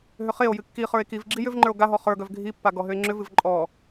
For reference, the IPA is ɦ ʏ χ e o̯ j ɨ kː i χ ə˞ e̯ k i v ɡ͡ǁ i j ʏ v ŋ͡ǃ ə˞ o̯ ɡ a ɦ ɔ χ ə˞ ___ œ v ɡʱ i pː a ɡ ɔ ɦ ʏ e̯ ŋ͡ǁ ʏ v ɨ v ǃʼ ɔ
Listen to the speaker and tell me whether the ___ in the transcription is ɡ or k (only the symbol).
ɡ